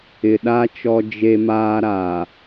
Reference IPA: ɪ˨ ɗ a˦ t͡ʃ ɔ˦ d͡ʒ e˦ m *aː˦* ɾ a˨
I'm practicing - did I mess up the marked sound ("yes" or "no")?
no